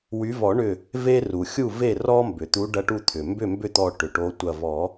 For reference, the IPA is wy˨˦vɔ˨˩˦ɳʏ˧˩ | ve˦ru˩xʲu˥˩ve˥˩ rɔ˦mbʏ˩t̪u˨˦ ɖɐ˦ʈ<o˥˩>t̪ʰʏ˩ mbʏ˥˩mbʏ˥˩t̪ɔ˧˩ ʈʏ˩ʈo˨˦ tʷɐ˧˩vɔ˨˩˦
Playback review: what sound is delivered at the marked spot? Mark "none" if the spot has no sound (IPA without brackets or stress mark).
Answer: u˥˩